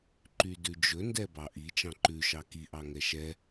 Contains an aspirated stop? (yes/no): no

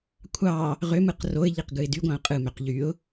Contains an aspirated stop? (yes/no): yes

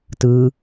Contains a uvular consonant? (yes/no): no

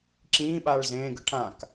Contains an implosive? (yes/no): yes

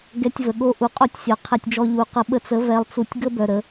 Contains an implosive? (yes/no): yes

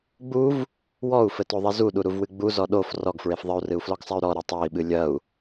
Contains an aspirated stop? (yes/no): no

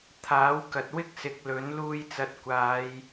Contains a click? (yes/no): no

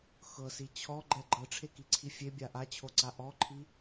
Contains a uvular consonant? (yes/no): no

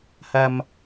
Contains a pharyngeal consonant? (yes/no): no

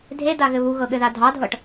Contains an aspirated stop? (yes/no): no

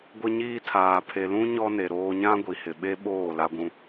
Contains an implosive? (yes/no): yes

